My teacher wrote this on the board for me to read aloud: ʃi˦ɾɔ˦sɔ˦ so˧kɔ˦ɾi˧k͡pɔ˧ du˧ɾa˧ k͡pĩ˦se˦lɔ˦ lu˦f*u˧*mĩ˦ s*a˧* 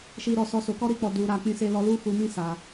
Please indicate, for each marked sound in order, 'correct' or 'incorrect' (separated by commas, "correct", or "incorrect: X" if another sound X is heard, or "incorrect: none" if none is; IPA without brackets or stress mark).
correct, correct